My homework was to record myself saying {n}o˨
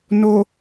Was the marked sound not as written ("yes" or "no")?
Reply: no